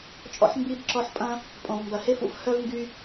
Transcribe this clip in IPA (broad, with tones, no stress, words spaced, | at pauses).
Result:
t͡ʃʼɔ̰˧ħmbi˧b ǁɔ˧ħpʼɐ̃˦ | pʼõ˨vmbɐ˨he˦fṵ˦f hœ˦vŋɡy˦